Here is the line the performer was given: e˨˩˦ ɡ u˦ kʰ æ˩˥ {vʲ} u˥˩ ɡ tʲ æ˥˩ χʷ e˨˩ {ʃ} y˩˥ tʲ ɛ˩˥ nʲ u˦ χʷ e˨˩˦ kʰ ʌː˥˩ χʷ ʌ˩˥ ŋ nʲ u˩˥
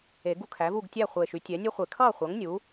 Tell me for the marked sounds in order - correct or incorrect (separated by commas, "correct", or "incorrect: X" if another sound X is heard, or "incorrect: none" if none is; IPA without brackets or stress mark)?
incorrect: v, correct